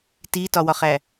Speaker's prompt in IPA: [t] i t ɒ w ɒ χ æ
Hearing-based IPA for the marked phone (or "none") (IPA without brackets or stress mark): t